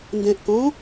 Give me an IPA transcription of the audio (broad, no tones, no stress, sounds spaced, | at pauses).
n d ɛ̃ ʔ k ɔ̃